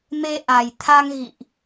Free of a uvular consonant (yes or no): yes